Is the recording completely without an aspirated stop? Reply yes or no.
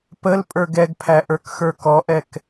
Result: no